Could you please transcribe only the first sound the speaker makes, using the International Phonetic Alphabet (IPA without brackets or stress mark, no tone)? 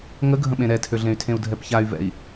ŋ